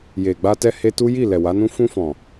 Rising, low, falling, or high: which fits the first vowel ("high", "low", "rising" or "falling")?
low